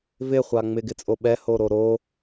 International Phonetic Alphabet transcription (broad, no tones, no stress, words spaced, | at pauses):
vɪχʷa ŋ͡mɪɡɪt͡sʼo ɓɛhoɾo ɾo